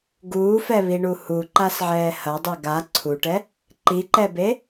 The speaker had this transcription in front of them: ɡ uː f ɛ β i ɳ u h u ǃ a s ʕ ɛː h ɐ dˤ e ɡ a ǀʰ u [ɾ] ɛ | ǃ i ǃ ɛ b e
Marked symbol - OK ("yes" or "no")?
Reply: no